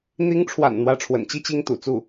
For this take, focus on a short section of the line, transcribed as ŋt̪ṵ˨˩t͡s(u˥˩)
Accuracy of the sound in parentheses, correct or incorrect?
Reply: correct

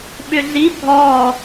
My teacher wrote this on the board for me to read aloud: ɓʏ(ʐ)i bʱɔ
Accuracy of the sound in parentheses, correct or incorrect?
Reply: incorrect: ɮ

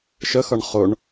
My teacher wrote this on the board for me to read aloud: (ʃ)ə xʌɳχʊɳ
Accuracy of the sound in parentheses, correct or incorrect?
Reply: correct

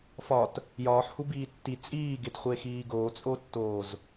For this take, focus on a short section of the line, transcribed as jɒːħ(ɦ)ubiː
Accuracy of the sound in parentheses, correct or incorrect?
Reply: incorrect: h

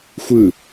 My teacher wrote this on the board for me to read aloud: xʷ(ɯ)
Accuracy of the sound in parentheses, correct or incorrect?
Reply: correct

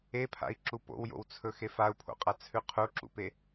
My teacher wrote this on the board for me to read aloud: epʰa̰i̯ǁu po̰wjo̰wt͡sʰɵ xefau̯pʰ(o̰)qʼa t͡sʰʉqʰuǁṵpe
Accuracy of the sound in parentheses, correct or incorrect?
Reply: correct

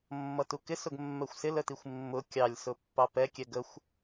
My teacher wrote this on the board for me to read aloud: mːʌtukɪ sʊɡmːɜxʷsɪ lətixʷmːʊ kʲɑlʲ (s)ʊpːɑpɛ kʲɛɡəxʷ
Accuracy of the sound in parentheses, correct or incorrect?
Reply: correct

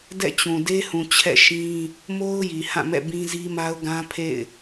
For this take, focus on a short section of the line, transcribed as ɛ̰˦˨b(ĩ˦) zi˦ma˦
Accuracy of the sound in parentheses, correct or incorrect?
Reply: correct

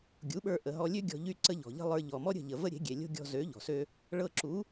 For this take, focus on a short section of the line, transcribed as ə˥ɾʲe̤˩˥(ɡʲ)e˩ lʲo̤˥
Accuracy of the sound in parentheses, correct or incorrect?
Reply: correct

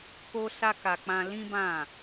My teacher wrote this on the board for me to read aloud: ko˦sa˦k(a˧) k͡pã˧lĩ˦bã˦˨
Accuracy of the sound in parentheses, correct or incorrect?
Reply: correct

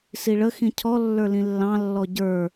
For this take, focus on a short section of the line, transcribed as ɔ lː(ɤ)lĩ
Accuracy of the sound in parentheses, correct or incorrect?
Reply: incorrect: ə˞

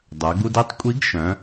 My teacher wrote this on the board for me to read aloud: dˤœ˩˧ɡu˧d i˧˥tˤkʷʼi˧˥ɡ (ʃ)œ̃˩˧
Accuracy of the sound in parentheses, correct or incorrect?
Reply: correct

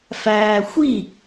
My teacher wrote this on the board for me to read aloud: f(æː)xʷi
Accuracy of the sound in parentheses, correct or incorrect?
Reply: correct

